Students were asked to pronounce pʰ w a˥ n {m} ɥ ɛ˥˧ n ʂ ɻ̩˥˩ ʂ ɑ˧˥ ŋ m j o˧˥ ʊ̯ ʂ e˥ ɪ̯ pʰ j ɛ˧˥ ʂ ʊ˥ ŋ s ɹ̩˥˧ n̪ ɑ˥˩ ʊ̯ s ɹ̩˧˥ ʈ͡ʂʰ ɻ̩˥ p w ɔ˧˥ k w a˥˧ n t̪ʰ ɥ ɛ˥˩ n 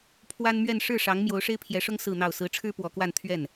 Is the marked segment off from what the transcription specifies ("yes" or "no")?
no